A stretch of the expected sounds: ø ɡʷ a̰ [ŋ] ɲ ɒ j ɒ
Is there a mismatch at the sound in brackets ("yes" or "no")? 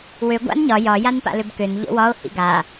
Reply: yes